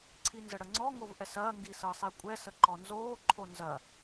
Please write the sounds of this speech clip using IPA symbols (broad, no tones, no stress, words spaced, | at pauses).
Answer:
ǀʰinzəɽəŋ͡ǀɔ ŋovʔɛsɐː ŋɡisɤsˤikʷʼɛ səǃɔnzoː ǃʰonzɐ